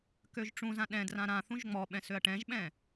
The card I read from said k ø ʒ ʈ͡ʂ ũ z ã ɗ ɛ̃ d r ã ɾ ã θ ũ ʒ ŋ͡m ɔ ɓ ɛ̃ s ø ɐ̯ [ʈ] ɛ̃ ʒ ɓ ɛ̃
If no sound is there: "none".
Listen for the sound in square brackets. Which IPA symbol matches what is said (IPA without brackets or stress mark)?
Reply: ʈ